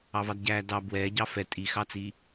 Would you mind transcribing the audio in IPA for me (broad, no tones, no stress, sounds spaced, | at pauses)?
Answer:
ɑ v ɑ d ɟ æː d ɑ b w ɛː ɟ ɑ f ɛ tʼ i x ɑ t͡s i